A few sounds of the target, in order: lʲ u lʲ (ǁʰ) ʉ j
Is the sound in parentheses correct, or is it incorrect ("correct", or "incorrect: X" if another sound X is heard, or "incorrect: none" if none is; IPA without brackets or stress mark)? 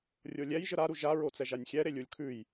incorrect: kʰ